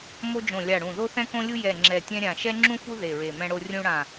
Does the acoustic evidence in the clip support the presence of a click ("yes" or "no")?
yes